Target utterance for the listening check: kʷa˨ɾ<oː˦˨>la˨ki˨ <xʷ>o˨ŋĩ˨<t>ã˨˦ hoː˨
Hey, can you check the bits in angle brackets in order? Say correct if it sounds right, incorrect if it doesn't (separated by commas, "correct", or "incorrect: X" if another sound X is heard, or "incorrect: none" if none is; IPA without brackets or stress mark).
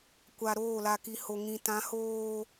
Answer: correct, incorrect: h, correct